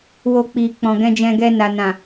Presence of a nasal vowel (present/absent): present